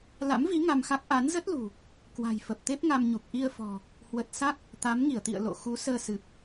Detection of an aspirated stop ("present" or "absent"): absent